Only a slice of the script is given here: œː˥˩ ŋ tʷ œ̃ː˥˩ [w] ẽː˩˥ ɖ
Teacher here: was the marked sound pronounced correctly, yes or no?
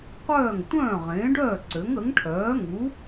no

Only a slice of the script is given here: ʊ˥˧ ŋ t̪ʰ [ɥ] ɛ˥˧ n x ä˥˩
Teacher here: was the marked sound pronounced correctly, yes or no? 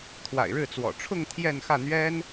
no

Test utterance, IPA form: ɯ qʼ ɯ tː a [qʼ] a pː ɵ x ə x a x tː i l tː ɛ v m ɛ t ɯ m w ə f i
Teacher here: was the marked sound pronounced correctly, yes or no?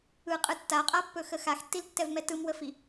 yes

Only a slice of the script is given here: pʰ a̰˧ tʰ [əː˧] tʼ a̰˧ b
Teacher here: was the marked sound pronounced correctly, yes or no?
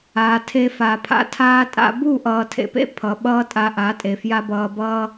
no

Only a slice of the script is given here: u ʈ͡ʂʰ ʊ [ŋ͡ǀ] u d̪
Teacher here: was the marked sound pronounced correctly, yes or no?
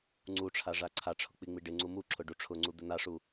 yes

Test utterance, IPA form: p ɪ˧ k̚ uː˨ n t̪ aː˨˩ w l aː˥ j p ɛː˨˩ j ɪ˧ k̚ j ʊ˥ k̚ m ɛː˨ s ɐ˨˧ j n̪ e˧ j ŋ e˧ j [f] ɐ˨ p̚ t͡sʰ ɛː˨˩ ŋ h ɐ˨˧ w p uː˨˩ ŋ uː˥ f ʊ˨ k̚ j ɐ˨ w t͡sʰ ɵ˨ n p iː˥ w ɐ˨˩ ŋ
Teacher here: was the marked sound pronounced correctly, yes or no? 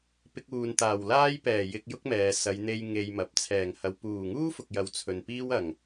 no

